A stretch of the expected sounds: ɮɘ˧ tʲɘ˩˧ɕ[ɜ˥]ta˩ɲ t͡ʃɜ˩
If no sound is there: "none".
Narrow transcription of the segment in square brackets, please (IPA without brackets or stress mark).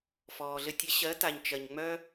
ɜ˩˧